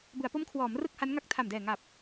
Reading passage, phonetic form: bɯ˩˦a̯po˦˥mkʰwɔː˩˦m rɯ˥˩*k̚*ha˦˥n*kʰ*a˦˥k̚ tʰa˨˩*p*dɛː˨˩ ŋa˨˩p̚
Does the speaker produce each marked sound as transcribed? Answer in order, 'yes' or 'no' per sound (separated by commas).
yes, no, no